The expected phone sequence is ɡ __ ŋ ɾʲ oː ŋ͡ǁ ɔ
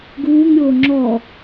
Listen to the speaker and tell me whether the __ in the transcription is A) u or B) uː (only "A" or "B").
B